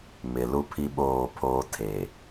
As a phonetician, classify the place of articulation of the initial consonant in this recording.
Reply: labial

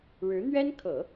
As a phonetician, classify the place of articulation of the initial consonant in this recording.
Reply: retroflex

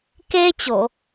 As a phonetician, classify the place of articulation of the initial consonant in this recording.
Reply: velar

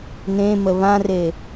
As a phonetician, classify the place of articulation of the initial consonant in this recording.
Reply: alveolar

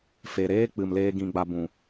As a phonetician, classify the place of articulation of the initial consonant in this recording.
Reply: labial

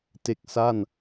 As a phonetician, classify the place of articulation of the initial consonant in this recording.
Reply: alveolar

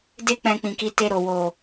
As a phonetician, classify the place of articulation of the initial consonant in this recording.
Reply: alveolar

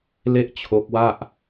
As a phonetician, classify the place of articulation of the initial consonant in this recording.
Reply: alveolar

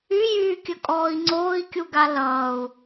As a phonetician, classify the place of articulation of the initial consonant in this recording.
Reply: palatal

